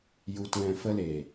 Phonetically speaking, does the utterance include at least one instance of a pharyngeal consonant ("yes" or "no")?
no